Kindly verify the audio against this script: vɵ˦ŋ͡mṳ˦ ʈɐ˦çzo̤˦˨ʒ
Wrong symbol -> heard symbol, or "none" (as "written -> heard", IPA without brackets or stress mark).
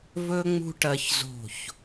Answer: ʒ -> ç